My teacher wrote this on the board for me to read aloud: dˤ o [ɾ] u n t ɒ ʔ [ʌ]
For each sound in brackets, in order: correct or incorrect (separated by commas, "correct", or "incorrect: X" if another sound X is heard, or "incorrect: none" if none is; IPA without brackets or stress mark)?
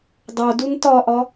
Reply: incorrect: d, incorrect: ɒ